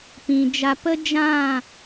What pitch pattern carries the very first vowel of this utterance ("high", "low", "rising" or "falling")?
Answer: low